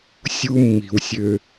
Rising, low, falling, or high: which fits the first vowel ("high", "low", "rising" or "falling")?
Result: high